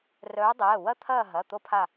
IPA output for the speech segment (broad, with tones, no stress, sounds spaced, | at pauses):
r œː˨˦ dˤ ɛː˩˧˩ w ɐ˦ t̪ʰ ɐː˦˨ ɦ ɐ˩˧˩ t̪ o˦ pʰ a˦˨